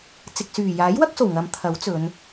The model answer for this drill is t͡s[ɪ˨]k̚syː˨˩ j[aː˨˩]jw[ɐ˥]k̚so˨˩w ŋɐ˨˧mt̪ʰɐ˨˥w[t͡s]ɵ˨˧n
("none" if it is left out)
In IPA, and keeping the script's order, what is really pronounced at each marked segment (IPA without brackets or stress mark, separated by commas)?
ɪ˨, aː˨˥, ɐ˥, t͡s